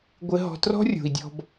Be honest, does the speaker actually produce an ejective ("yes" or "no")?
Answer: no